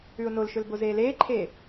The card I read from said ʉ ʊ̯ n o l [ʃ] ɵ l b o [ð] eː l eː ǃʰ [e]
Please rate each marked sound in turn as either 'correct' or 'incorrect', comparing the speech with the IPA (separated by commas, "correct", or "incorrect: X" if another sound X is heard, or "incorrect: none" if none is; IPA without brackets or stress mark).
correct, incorrect: z, incorrect: eː